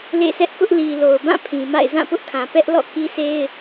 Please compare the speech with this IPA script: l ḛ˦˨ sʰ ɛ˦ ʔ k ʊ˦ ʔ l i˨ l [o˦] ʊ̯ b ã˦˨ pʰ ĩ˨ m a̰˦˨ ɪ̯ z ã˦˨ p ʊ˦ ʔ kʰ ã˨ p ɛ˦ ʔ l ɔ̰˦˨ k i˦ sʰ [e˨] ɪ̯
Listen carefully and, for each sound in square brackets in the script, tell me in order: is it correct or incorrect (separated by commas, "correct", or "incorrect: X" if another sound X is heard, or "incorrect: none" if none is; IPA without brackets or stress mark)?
incorrect: o˨, incorrect: e˦